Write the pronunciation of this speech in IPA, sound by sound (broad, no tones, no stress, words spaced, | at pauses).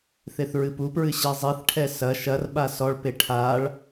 θeθɹɨpupɹɨ ɕɛzˤiθʈʰɛ sɐ ʃɐrɓa sɔɭpe ʈʰaɭ